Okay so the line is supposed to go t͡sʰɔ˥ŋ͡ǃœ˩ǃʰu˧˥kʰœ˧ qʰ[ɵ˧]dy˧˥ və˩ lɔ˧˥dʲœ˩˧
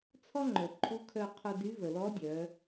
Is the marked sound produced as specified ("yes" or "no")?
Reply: no